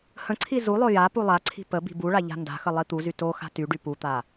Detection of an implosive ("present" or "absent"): absent